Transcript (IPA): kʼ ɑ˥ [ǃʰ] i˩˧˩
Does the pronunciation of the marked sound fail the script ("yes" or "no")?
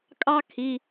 yes